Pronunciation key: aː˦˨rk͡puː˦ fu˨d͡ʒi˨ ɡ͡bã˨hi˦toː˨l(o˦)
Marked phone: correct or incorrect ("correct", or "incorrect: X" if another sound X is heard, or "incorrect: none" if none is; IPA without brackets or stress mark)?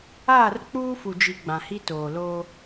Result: incorrect: oː˦